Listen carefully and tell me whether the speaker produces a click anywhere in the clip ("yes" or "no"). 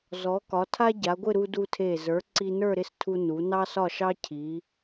yes